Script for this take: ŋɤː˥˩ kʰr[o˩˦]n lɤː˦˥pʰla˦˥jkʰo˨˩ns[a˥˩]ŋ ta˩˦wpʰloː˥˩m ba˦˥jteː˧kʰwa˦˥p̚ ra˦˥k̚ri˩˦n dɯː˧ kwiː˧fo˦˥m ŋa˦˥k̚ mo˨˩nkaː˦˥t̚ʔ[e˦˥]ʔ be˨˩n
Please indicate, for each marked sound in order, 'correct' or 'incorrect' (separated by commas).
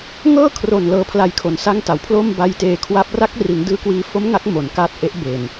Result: incorrect, correct, correct